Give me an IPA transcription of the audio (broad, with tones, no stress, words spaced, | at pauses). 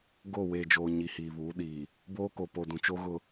ɡo˦˨ weː˨d͡ʒoː˨ ɲi˨hiː˨βuː˨˦ ɗiː˨ | boː˦ko˨ po˨dũ˨ t͡ʃo˦ɣʊ˦